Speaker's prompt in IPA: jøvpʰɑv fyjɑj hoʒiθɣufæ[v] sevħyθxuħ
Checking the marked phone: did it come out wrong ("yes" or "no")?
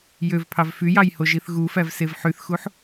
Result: no